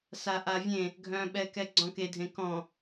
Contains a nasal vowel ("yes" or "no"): yes